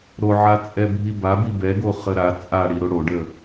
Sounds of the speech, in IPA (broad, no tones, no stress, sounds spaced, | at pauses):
ɾ o ʕ a t͡sʼ ɛ bʱ i b a b i b ɛ ɡ o χ ə ɾ a t͡sʼ a ɽ i ɾ o ɽ o ɖ ə